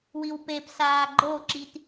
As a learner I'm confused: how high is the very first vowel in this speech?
high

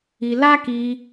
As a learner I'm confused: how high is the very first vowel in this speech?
high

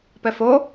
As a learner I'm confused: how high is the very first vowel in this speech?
mid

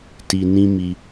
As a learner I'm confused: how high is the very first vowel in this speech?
high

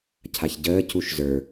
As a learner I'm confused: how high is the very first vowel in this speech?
low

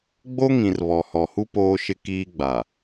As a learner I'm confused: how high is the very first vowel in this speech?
mid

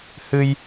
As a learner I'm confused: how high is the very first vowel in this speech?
high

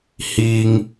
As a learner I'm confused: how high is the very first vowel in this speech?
high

